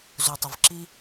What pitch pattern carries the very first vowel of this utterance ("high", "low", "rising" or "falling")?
low